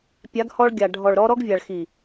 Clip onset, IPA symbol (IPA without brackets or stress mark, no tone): pʲ